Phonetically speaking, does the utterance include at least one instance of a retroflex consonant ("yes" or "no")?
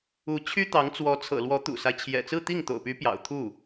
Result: no